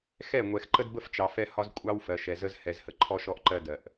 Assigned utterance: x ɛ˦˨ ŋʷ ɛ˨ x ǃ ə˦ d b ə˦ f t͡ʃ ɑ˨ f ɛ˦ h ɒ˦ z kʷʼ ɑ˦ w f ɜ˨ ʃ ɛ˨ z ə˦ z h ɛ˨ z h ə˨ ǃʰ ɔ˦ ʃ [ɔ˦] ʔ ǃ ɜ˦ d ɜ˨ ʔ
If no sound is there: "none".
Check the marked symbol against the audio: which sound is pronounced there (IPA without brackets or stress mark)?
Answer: ɔ˦